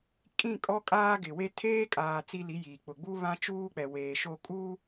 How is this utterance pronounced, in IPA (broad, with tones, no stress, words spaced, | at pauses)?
kʼĩ˦˨ kʼɔ˦kʼaː˦ɡɪ˨we˦ tʰeː˦kʼaː˨ t͡si˦li˨˦ jiː˨k͡pʊ˨ ɡ͡bu˦βã˦t͡ʃuː˦k͡pɛ˨ weː˨ʃo˦ kʼuː˦